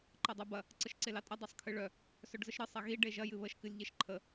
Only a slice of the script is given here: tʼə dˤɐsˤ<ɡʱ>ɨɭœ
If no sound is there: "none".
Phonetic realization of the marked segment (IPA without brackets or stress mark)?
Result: kʰ